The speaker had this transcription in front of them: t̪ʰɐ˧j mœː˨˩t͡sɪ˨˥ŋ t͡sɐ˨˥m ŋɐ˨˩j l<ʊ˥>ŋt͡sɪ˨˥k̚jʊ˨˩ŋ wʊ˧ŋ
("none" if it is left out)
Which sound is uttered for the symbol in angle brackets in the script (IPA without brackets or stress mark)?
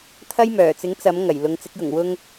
ʊ˨˧